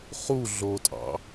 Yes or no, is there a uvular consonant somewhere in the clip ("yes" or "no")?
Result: yes